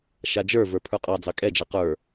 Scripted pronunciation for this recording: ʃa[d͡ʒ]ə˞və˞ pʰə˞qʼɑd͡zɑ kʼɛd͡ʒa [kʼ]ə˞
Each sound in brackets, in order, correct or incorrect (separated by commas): correct, incorrect